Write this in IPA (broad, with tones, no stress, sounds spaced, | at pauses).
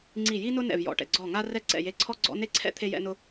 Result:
ŋ͡ǀ i˦˨ j i˥ n ʊ˥ n ɛ̰˦˨ v j ɔ̰˦˨ ʈ ɛ̰˦˨ ɡ͡ǀ ɔ˦˨ ŋ a˥ r ɛ˥ ǀ ɛ̰˦˨ j e˦˨ ǀʰ ɔ˥ ɡ͡ǀ ɔ̰˥ n e˥ ǀʰ ɛ̰˥ t̪ʰ e˥ j ɛ̰˥ n ʊ˥